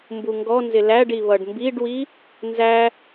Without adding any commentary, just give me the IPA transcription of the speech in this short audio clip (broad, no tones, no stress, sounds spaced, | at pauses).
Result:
m b u ŋ ɡ ɔ n z ɪ l æ ɖ i β ʌ ɖ m b i ɖ w i | n z æ